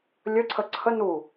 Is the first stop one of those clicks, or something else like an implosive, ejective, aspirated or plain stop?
click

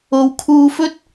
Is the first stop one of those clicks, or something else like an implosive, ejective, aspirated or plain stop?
aspirated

